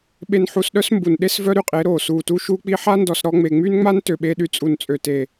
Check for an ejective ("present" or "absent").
present